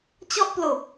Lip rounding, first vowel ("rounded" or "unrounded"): rounded